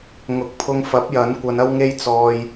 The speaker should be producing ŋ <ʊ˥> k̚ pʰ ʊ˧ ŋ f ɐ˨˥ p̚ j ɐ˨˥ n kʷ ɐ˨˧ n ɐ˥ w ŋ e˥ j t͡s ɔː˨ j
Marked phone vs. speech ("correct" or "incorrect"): incorrect